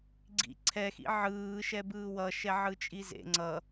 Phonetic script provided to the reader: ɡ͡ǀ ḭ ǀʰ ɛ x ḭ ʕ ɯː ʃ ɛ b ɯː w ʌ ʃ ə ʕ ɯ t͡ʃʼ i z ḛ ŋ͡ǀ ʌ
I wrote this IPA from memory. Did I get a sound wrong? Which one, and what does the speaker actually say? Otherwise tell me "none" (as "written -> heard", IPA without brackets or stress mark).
ə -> ɛ